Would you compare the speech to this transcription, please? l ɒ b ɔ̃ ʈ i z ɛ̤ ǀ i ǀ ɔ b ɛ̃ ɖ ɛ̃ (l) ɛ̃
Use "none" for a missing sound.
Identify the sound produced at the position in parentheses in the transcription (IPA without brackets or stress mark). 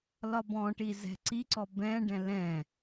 l